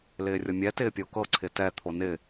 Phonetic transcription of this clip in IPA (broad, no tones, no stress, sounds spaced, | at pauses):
l ɪː rʲ ɤ mʲ ɛ t ɪː pʲ o k ɤ ǀʰ ɪ t ɛ t̪ʰ o n ɪ